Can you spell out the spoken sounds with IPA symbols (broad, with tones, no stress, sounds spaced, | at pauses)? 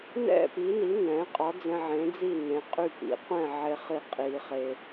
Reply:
n ɛ̰˥˩ p i˩˥ n i˩˥ n ɛ̃˩˥ qʼ ɒ˩˥ d͡z ɛ̃˧ ʕ ẽ˩˥ d͡z i˥˩ n ẽ˩˥ qʼ y˥˩ p ḭ˩˥ qʷ ɛ̃˥˩ ʕ e˧ χ i˥˩ qʼ i˧ χ e˧